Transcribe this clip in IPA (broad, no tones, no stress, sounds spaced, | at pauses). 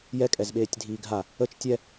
j ɛ kʼ ɛ z ɓ eː tʲ dʱ iː ɡʱ a | ə t͡ʃ tʲ ɛ